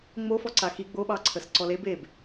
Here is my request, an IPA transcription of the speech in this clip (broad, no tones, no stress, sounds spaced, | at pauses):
ŋ͡m o f ɔ ǀ a x i ɡ͡b o ɓ ɑ ǀʰ ə s ǀ ɔ l e b e b